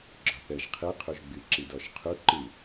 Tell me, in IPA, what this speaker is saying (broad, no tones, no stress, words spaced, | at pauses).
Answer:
ɡ͡ǁɒθəʒ qʰɨ qʰuʒɡ͡bɨ ǁidɔʃqʰu ǃɨ